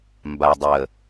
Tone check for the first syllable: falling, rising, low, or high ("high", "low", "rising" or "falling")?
low